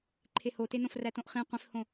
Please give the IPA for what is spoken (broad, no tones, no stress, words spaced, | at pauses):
ǃʰehotenõf rætõʔχĩ qʷĩfhõ